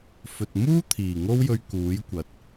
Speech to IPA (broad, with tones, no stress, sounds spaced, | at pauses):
f ɵ˨ t̚ m uː˥ t̪ʰ iː˨˩ ŋ o˥ w j ɵ˧ ɥ k uː˨˥ j kʷ ɐ˨˥ t̚